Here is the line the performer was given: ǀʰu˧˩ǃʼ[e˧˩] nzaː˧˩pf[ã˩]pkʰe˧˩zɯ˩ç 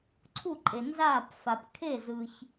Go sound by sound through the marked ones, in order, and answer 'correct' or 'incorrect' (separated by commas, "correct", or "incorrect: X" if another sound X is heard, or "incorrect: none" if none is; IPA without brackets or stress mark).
incorrect: e˩, incorrect: a˩